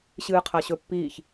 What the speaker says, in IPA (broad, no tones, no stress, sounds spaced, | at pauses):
ɕ ɨː qʰ ɐ ɕ ɵ pː iː ç